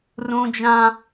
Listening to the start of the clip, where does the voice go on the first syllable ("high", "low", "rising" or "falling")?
high